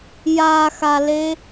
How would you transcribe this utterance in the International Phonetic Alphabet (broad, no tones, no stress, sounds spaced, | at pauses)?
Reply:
j a x a l e